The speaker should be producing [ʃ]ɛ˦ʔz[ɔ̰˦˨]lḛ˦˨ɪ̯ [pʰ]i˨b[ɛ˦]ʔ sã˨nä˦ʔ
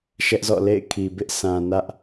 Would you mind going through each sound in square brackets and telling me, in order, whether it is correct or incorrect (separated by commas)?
correct, correct, incorrect, incorrect